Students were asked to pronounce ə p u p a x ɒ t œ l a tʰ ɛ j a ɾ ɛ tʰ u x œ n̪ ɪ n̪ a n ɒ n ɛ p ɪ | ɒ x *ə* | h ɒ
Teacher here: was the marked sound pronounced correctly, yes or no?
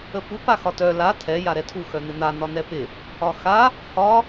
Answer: no